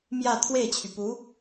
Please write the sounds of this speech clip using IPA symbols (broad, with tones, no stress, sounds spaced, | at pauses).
m j ä˥˧ t̪ʰ w e˥˩ ɪ̯ t͡ɕʰ y˩ p u˧˥